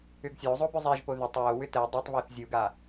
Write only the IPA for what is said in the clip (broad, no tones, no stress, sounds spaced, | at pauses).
ʏ ɡ sʲ o zˤ o b ʏ zˤ ɛ ʒ p o ð ʏ tˤ w o w ʏ t ɛ dˤ ɛ tˤ β o θ zʲ u ɡ a